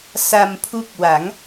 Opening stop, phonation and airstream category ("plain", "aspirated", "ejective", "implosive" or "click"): aspirated